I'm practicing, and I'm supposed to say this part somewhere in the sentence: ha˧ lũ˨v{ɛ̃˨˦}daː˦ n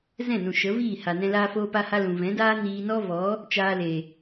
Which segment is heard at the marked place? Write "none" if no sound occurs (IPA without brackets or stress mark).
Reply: ɛ̃˨˦